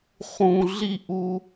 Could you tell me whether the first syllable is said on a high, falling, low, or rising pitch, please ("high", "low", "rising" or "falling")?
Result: low